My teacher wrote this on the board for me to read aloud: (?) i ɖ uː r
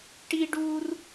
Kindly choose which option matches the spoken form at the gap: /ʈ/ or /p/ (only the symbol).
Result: ʈ